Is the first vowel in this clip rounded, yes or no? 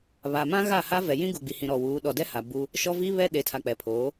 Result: no